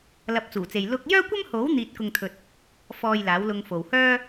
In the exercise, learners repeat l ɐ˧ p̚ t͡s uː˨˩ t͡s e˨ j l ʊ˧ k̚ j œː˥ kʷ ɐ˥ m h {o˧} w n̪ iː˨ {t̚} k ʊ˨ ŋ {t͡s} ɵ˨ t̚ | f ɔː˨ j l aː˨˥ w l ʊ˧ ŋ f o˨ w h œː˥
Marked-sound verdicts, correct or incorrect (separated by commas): incorrect, correct, incorrect